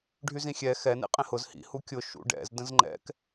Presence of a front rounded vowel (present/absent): present